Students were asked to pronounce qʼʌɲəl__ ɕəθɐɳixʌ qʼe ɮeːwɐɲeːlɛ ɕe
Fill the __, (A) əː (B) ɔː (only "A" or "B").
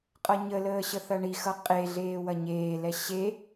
A